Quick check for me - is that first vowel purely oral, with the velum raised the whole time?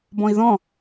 no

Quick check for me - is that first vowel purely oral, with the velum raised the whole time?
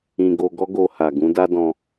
no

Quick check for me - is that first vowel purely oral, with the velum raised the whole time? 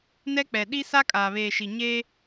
yes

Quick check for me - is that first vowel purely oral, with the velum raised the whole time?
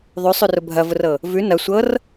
yes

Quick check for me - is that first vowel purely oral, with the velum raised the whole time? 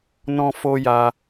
no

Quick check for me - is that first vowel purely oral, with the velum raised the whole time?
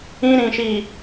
no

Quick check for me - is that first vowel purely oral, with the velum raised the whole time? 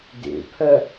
yes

